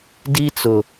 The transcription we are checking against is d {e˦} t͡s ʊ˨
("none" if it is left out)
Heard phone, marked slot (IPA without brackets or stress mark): i˦